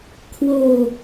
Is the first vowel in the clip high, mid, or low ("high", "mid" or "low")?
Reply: mid